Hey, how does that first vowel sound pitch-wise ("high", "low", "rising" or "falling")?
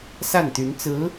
falling